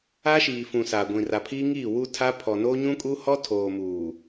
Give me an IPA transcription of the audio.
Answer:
a˦ʃiː˨fũ˨ saː˨ɡʷĩ˨ra˨pʰiː˦ ŋiː˦˨wu˦tʰa˦ pʰɔ˨noː˦ ɲũ˦kʼu˦ hɔ˦tʰoː˨ muː˨

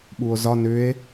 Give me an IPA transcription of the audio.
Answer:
ɓuo̯zɒ nʏe̯

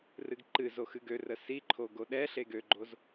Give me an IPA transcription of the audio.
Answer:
rɨɡǃɨzo xɨɡørə siǃʰo ɡoɗɛɬe ɡøɡ͡ǃoz

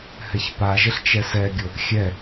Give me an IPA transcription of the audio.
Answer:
hɛçpaʒɘɬ t͡ʃɛsɛɡʲʊ | xʲɛ

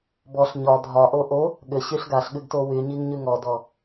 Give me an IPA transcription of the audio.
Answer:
bɔɬ ɲɒ dʱɒʔo ʔo | ɠʏɕyɬ ɡaɬ ɠʉɡtowyɲiŋ ɲʉŋɔdɔ

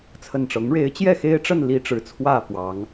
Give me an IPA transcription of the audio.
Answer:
t͡sʰə˨˩nʈ͡ʂɤ˨˦ŋɻe˨˦ɪ̯ t͡ɕjɛ˥˨xe˦ɪ̯ʈ͡ʂə˥˨n li˦ʈ͡ʂɻ̩˨˦t͡sʰwä˥˨fwɑ˨˦ŋ

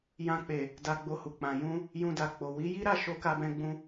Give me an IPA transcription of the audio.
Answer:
jã˧k͡pe˨ | da˧ɡ͡bo˧hu˨k͡pã˨ jũ˧ | jũ˧da˨k͡po˨ wi˨˦ji˦ɾa˦˨ ʃo˧ka˧bɛ̃˧ ɡ͡bũ˧

